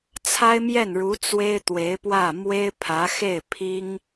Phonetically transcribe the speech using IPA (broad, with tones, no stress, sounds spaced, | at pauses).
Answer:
t͡sʰ a˥ ɪ̯ m j ɛ˥˩ n ɻ u˧˥ t͡s w e˥ ɪ̯ t̪ w e˧˥ ɪ̯ p w ä˥˩ m w e˥ ɪ̯ pʰ ä˧˥ x e˥˩ ɪ̯ pʰ i˥ ŋ